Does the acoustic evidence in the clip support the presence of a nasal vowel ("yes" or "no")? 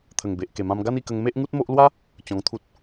yes